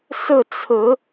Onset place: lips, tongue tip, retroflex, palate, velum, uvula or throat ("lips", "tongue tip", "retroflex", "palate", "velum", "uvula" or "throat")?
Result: tongue tip